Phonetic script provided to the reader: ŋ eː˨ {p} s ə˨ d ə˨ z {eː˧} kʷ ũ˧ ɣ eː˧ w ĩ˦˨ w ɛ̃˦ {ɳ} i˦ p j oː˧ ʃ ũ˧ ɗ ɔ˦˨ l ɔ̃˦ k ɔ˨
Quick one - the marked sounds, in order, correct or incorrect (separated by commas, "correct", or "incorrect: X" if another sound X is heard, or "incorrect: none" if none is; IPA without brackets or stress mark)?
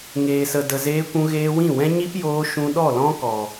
incorrect: none, correct, incorrect: ɲ